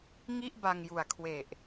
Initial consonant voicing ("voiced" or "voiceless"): voiced